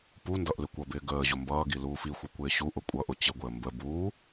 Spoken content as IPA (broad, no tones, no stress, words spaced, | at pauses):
pundʌʔ lɪkʷʌbɪː ɡəːʑʊ mbʌːɡi luːfixʷi kʷɪːɕuʔʊ kʷʼʌʔʊ t͡ɕɪɡʷɪə̯ mbə buː